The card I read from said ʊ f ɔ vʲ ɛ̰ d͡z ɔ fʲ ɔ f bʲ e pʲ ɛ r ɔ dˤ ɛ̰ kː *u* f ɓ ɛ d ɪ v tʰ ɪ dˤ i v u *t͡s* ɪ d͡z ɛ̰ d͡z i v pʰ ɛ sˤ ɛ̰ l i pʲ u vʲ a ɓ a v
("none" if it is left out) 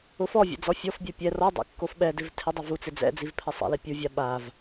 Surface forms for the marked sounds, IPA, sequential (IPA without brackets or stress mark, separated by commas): o, t͡s